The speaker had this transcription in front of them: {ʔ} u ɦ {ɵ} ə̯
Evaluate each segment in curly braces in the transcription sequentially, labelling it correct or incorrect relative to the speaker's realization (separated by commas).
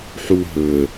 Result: incorrect, correct